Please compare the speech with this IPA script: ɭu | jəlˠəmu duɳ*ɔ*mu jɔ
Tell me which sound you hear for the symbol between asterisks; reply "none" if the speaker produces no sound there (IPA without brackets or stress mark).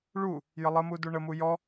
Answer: ə